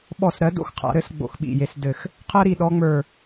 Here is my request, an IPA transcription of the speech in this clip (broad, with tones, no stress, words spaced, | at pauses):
ɓɔ˦˨sɾɜ˧˥ do̰˥xqʰa̰˧˥ɾɘ˧˥sɡ͡bo̰˦˨x ɓḭ˦˨je˧˥sdɘ˦˨x | qʰɜ˥ɾi˦˨ ɗɔ˥ŋ͡mə˞˦˨